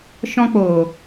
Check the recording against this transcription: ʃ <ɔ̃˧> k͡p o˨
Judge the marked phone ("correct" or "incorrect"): correct